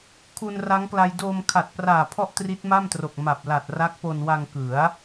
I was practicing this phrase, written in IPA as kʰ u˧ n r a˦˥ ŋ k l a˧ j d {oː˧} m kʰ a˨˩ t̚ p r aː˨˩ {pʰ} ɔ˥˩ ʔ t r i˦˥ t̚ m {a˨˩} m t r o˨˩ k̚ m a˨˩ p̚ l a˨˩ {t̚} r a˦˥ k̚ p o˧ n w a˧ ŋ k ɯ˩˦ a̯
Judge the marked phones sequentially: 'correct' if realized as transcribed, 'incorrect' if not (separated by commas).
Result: correct, correct, incorrect, correct